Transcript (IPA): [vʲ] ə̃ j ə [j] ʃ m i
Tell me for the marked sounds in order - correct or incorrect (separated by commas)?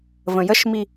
incorrect, incorrect